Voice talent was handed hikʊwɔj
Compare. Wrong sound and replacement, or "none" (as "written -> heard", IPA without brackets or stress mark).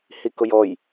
w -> j